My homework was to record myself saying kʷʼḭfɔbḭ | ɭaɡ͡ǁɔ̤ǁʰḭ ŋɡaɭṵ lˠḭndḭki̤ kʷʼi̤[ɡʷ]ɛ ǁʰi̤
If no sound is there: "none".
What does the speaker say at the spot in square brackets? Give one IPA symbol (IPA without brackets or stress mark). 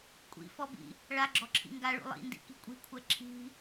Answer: kʷʰ